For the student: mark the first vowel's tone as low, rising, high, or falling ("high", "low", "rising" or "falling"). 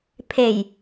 low